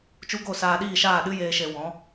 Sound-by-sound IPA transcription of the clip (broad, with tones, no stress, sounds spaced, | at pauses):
t͡ʃ u˦ ɡ o˦˨ s aː˧ ɗ iː˦˨ ʃ aː˦˨ ɗ ɨ˦ j eː˦ ʃ e˧ w ɔ̃˨˦